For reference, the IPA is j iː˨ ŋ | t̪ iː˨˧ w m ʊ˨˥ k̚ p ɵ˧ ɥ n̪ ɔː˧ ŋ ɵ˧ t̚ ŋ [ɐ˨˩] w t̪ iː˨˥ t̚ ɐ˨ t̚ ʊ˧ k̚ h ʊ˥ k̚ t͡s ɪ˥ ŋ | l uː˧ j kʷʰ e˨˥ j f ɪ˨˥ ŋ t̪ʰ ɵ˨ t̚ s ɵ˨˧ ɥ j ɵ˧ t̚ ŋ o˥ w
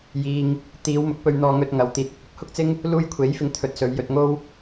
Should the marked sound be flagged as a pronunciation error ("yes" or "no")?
yes